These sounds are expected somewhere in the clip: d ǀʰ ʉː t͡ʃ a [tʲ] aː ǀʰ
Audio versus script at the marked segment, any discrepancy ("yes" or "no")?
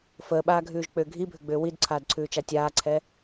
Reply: no